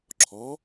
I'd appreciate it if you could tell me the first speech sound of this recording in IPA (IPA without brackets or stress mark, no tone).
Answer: ǁʰ